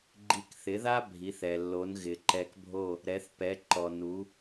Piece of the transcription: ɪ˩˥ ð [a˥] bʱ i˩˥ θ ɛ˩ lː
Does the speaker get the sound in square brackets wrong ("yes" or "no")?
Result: no